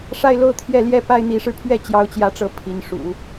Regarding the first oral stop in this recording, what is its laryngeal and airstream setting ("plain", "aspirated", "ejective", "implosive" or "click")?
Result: aspirated